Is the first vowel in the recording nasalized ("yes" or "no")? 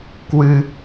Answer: no